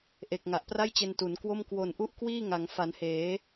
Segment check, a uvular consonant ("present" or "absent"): absent